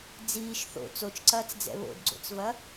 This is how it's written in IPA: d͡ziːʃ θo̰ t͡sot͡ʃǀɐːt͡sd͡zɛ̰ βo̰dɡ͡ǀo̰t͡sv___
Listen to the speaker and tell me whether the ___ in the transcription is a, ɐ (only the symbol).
ɐ